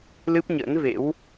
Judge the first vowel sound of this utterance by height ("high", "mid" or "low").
high